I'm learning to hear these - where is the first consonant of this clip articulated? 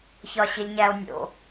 palate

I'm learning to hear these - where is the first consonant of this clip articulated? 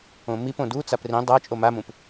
lips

